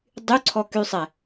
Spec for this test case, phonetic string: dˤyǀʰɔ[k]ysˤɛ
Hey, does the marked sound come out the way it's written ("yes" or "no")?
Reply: yes